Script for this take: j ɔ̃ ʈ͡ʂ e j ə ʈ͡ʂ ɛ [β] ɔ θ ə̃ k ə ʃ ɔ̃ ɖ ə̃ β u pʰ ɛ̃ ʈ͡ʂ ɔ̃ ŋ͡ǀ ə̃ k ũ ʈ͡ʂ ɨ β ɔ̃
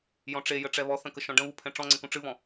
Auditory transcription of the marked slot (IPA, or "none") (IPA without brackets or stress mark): β